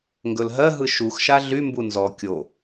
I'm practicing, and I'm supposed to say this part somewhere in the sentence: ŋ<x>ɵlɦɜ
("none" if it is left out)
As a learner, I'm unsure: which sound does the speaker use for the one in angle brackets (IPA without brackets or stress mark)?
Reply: ɡ